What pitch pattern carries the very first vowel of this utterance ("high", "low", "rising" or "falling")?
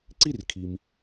falling